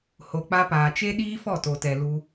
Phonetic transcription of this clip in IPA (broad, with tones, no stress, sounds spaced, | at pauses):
h o˨ k͡p a˧ p aː˨ t͡ʃ e˦ ɗ iː˦ f ɔ˦˨ t o˨ t ɛ˨ l u˧